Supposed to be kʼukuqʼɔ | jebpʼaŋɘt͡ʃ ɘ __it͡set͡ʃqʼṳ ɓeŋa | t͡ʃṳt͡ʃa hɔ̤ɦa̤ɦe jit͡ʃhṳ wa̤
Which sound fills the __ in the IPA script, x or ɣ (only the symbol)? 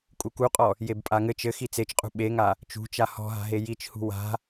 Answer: x